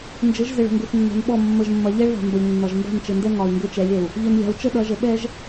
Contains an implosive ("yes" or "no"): yes